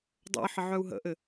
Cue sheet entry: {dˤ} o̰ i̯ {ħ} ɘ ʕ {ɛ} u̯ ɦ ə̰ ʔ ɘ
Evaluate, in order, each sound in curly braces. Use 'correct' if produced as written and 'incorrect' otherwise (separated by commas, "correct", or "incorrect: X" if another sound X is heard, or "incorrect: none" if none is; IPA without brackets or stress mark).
correct, correct, incorrect: œ